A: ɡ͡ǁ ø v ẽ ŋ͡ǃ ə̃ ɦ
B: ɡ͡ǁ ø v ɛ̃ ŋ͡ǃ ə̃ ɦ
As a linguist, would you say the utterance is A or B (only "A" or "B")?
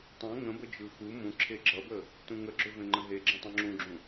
A